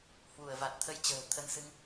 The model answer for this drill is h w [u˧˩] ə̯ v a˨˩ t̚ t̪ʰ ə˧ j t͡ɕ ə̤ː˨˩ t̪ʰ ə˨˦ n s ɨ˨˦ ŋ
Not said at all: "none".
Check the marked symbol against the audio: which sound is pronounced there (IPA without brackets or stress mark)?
u˧˩